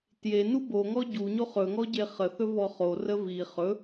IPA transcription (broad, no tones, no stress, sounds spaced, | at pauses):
t j e n u b o ŋ ɔ ɟ u ɲ o χ ɵ ŋ ɔ ɟ e χ ə θ ɵ v ɔ χ o r ə v i χ ɵ